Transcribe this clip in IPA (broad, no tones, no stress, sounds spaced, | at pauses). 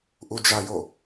ʔ u d͡ʒ a j o